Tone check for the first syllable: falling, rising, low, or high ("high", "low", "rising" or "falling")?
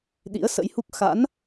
rising